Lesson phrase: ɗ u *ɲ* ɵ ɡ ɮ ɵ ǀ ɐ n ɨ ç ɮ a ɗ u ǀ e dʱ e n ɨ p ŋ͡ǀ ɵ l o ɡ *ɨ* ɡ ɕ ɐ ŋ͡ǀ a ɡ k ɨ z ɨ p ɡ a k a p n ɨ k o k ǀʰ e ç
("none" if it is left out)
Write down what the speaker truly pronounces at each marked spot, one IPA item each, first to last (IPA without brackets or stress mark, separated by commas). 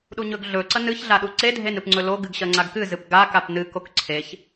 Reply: ɲ, ɨ